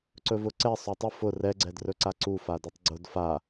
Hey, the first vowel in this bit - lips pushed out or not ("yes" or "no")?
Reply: yes